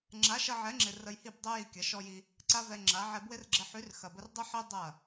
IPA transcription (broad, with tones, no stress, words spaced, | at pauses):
ŋ͡ǁa˨˦ʃɐ˧ʕɛ˨˦ŋ͡ǁɪ˨ rə˧jhi˦˨bdˤɛ˦ ji˧ kʲɐ˨˦ʃɔ˦ji˦ | ǀa˦vɛ˧ŋ͡ǁa˨˦ ʕɛ˧bwɪ˦rɡ͡ǁə˧ ħy˨˦rxɐ˨bə˧r dˤə˦ħi˦ dˤɐ˦˨